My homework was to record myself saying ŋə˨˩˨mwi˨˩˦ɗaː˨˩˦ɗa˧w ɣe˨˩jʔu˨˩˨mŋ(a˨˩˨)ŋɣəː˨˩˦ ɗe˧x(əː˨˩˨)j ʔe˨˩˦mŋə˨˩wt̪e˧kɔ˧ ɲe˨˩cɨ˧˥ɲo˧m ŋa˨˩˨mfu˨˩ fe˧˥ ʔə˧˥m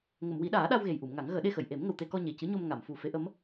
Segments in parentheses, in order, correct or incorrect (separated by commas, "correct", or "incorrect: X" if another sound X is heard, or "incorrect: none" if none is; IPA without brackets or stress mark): incorrect: a˨˩˦, incorrect: ə˨˩˨